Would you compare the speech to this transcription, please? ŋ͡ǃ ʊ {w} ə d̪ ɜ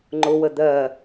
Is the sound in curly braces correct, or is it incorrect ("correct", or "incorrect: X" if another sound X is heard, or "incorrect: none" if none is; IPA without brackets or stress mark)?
correct